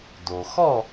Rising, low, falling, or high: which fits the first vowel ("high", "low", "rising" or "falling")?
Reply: low